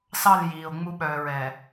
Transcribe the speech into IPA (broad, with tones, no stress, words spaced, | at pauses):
sɑ˦˨l jiː˨o̯ŋ͡mu˦ ɓœː˨ɹɛː˨